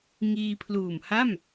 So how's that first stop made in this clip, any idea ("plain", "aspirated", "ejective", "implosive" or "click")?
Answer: aspirated